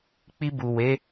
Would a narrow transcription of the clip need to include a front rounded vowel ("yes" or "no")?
no